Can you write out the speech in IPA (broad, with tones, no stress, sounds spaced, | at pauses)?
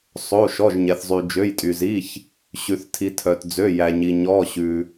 sˤ o˩˧˩ ʃ ɔ˩˧˩ ʒ ɲ ɛ˩ θ zˤ y˩ d͡ʒ ø˩˧˩ j tʼ y˩ z i˩˧˩ ç | ɕ ʉ˩ θ tʰ i˩ tʰ œ˩ t d͡z ø˩˧˩ j æ˩ ɲ i˩ ɲ ɔ˩˧˩ ɕ ʉ˩